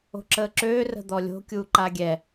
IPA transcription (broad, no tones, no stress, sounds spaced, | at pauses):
o̤ ǁ əː ǁ øː r ə̤ d̪ ɔ lʲ o̤ kʲ uː ǃ a ɡʲ ɛ